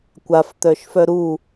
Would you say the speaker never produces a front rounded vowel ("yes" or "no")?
no